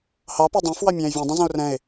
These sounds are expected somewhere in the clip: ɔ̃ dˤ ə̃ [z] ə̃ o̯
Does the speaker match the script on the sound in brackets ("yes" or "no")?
yes